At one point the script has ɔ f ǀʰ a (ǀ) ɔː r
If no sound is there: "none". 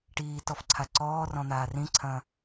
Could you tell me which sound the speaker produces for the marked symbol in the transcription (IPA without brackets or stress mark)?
ǀ